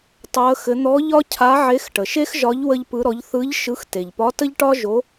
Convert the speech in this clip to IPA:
tˤ o˧˥ ə̯ x ɘ˧˥ n̪ ɔ˧˥ ʎ ɒ˥ cʰ a˧˥ ʕ e˧˥ x ʈ ə˩ ʃ e˥ x ʒ ɒ˧˥ ʎ w ə˥ ʎ p ɯ˧˥ ɾ ɔ˧˥ ʎ θ ɯ˧˥ ʎ ʃ ɯ˧˥ x t e˩ ʎ p ɒ˧˥ t ə˥ ʎ ʈ ɒ˥ ʒ o˧˥

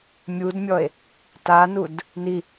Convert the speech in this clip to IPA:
mʲ u d mʲ ɔ e̯ | t a n u d | n i

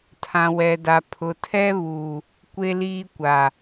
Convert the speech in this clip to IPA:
tʰ ã˨ w ɛ˨ d a˨ pʰ ʊ˨ tʰ ɛ˦ β uː˨ | kʷ e˦ l iː˦ kʷ a˨

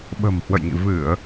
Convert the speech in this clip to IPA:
ɓ ə̤˨˩ m h w ə̰˧˨ j ŋ ḭ˧˨ v ɨ˧˩˨ ə̯

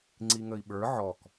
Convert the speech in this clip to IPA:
ŋ͡ǀ i ŋ ə i̯ ɓ ə˞ ʕ ɔ k

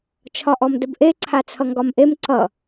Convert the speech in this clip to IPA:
t͡ʃʰ ɒ ʔ ɔ m d ə b ʔ e ǀʰ a t͡sʰ ʌ ŋ ɡ ɒ m ʔ e m ǀ ʌ

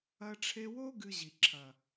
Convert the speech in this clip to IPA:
ɐ˧ ʈ͡ʂʰ e˧ w o˦ ɡ ɨ˧ ʑ i˨ ǁʰ ɐ˨

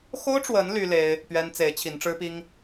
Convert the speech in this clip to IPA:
x o˦ ʊ̯ ʈ͡ʂ w ə˨˦ n l y˦ l e˦ ɪ̯ | p ɥ ɛ˦ n t͡s e˨˦ ɪ̯ t͡ɕʰ i˨˦ n ʈ͡ʂ ɻ̩˦ p i˦ ŋ

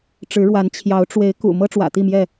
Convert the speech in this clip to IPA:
ʈ͡ʂ ɻ̩˨˦ ɻ w a˨˦ n t͡ɕʰ j ɑ˨˦ ʊ̯ ʈ͡ʂ w e˨˦ ɪ̯ k ṵ˨˩ m ɤ˦ ʈ͡ʂ w ä̰˨˩ t̪ i˥˨ m j ɛ˥˨

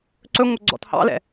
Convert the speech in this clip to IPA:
ǀ ɵ ŋʷ œ ɡ͡ǀ ɔ̰ t h ɑ̰ l ɛ̰

